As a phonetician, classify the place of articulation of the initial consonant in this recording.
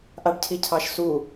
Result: glottal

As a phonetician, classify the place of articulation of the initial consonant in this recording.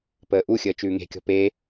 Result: labial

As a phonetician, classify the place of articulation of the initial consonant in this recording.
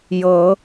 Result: palatal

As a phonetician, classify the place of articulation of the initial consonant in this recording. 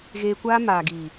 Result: velar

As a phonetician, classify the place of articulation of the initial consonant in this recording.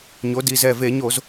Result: palatal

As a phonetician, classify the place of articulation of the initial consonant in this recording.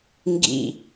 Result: velar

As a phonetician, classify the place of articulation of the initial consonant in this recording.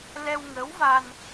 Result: alveolar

